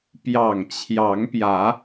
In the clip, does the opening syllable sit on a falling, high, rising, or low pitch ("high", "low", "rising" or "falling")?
low